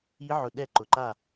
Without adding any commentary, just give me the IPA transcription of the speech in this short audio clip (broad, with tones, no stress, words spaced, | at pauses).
i˦˥ʕʊ˧ ɗɛ˥˧ǃʊ˧ǃa˥˧